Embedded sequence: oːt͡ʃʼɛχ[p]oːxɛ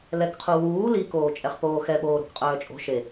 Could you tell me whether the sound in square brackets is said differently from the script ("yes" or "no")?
no